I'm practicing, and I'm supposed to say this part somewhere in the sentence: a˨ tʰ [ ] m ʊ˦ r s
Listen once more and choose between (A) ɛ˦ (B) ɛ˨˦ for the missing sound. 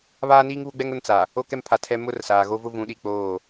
A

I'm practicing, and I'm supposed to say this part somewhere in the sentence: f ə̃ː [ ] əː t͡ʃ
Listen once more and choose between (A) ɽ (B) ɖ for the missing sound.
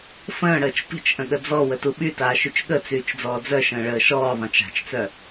A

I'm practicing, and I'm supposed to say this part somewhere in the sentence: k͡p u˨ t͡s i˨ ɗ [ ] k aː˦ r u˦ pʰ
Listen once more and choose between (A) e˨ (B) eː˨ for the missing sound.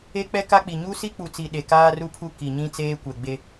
A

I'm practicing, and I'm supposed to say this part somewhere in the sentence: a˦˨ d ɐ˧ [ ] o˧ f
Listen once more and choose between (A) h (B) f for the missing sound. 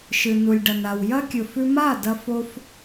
B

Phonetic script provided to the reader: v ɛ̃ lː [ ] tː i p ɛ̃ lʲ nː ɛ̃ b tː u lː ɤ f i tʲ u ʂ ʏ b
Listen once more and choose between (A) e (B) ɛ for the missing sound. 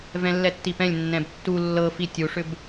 B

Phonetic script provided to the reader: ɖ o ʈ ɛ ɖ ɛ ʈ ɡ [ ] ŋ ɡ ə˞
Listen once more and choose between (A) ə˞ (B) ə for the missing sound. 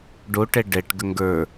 B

